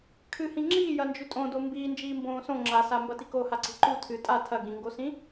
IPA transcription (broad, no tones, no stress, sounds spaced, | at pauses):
kʰ ɨ h ĩ ŋ͡ǁ iː j ɐ n d͡ʒ ʉ tʼ õ d o m b iː n d͡ʒ iː m b õː s õ ŋ͡ǁ a s a m b ɐ t i k o h a ǀ e̤ ǃ u tʰ ɨ tʼ a tʰ ɐ ɡ ĩ ŋ ɡ o s ĩ